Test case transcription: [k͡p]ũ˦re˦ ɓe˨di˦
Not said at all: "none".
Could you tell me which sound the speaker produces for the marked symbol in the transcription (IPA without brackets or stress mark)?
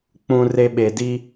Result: k͡p